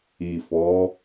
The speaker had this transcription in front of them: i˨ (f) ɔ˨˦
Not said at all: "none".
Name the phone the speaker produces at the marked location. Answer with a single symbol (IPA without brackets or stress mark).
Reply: f